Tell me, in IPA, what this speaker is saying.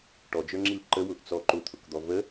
ʈ ɔ d͡ʒ ə˞ ŋ͡ǁ i l ǃ ə w ʊ ʔ t͡s ɔ ǃ ʊ t̪ʰ ʊ k d̪ ɔ v ə

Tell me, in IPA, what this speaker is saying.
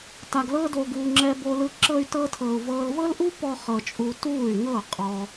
t a˧ ɡ l ɤː˦ d o˧ ɡ uː˧ ŋ͡ǁ ɛ˧ b o˧ l ɯ˧ ǁ ɤ˦ y̯ t ɤ˦ tʰ ɤː˧ u̯ v ɤː˧ l v ɤ˦ l ʔ u˦ p ɔ˦ χ ɤ˧ t͡ʃʼ u˧ t uː˦˨ y̯ ŋ ɤː˦˨ qʼ ɔ˧

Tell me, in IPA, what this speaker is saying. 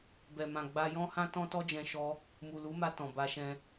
b ɛ˨ m ã˨ ɡ͡b a˧ j ɔ̃˦ h ã˦ t ɔ̃˦ t ɔ˦ d͡ʒ ɛ̃˧ ʃ ɔ˧ | m u˨ l u˨˦ m a˧ t ɔ̃˨ b a˧ ʃ ɛ̃˧

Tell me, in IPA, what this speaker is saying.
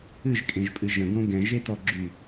ɨ ʒ kʼ ẽ ʒ pʼ ɨ ʒ ə̃ ɡ õ ɡ ɛ̃ ʒ e t̪ ɔ ɡ͡ǁ y

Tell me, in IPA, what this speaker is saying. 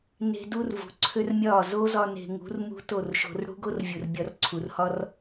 n e̤˧ d u˦ r v ṳ˨ ǀʰ ø˦ r mʲ ɒː˦˨ z o˦ z ɒ˧ n e̤˨ ŋ ṳ˨˦ r m ṳ˦ t o˦˨ r ʃ o̤˧ r ɽ ṳ˦ ɡ o˦ r vʲ u˨ r bʲ ɒ˧ r ǀʰ u˨ r h ɒ˦ r

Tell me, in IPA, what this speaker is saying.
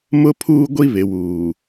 m ʊ˦ pʰ uː˦ ɡʷ i˦ β ɪ˨ w uː˨

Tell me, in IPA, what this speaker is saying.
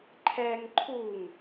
ǃʰ ɛ ŋ ǃʰ u ŋ

